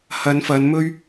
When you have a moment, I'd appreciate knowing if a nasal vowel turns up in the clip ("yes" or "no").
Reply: no